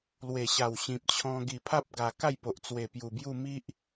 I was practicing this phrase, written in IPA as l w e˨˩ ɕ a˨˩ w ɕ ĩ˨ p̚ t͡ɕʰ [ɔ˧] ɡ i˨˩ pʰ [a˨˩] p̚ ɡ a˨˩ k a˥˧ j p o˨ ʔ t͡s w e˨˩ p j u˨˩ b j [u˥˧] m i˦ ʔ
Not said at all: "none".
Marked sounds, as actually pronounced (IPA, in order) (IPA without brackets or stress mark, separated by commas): ɔ̃˧, a˦, u˥˧